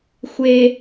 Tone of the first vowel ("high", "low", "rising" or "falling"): low